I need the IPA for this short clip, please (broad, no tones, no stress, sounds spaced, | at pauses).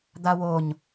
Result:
d̪ a w o ɲ